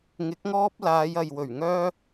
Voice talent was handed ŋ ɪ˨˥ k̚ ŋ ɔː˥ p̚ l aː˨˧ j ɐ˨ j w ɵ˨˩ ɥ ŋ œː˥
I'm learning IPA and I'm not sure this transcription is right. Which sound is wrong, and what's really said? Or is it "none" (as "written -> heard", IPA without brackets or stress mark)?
none